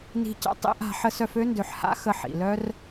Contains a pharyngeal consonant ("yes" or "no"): yes